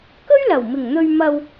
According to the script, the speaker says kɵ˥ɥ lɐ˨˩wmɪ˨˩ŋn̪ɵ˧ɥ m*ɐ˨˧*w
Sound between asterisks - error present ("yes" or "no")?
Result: yes